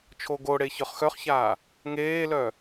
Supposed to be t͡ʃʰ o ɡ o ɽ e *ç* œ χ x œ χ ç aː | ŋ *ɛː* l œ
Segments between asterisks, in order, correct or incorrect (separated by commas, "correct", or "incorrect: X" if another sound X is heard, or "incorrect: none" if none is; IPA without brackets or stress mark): correct, incorrect: eː